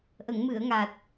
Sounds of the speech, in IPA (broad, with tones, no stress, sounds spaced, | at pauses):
ʔ ə˨˩˨ ŋ m ɨ˨˩˨ ə̯ ŋ a˨˩ t̚